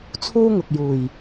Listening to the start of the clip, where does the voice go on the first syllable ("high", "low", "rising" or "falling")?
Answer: high